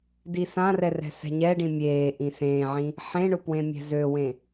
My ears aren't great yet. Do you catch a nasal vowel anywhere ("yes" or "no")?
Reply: yes